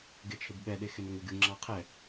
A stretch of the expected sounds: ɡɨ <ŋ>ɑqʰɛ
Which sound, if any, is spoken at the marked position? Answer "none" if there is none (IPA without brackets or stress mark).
ŋ͡ǁ